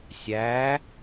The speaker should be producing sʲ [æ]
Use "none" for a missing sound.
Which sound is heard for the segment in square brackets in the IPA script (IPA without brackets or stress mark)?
æ